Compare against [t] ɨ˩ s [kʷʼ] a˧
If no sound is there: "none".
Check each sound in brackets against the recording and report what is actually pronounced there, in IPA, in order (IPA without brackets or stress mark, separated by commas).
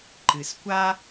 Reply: ǃ, kʷ